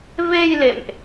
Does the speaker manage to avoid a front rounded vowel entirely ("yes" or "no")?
yes